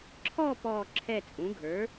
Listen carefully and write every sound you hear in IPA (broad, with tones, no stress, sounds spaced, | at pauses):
ǁʰ ɔ˥˧ p ɔː˥˧ ǁʰ ɛ˥˧ t͡sʼ ũ˩˥ ɡʱ ə˞˩˥